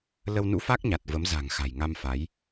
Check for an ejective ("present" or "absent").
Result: absent